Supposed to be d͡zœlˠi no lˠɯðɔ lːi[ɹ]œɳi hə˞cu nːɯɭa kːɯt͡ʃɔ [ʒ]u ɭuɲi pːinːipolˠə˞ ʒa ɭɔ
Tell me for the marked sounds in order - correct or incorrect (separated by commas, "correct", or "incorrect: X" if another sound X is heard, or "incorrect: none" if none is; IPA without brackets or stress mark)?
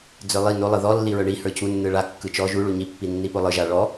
correct, correct